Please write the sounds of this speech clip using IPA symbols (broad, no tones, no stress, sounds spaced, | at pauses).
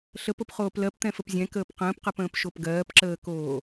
ɬ ə p o p χ oː p l ɜ p t̪ ɛ̃ f ə p zʲ ɛ̃ k əː p q ə̃ː p q ɜ p ə̃ː p ʃ o p ɡ ɜː p ǁ əː k oː